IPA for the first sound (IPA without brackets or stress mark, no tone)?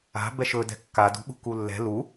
a̤